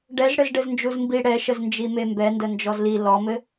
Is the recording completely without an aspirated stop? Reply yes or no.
yes